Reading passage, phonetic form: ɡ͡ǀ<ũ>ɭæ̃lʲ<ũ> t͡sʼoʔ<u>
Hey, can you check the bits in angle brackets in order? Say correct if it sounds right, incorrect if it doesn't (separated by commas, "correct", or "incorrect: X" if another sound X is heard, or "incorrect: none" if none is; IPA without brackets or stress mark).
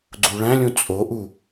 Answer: incorrect: u, correct, correct